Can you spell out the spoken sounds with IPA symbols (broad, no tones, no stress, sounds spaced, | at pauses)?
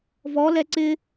v ɔ l ɛ ǀ ɪ